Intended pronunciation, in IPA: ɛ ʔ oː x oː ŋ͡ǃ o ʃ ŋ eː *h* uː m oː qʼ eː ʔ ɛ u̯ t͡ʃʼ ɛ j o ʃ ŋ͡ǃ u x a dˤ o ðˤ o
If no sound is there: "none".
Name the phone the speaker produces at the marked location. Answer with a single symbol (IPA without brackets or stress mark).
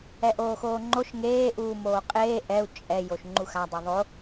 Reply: ʔ